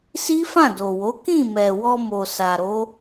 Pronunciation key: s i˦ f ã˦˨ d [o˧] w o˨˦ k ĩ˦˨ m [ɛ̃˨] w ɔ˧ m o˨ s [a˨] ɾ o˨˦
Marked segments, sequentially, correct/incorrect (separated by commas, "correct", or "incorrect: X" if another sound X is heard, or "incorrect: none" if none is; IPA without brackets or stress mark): incorrect: o˨, incorrect: ɛ˨, correct